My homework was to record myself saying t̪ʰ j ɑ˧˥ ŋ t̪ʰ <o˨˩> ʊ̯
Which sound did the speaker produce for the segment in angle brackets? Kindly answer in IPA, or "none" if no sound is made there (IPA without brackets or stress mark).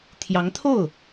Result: o˥˩